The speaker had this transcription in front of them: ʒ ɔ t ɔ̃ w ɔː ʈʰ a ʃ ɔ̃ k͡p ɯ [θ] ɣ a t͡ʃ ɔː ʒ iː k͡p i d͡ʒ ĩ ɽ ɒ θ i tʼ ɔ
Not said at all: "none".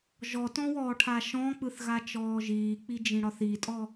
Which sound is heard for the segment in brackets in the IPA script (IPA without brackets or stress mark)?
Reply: θ